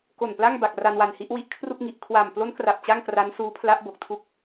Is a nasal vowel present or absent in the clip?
absent